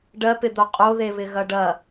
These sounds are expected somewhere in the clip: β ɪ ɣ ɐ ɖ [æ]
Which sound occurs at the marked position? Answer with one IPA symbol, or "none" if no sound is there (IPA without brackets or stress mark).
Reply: ɐ